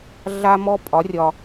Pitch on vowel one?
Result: high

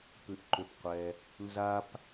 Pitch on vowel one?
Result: low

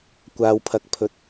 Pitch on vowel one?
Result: high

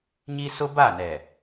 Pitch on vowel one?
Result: high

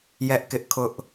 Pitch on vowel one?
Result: high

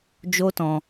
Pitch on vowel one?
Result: high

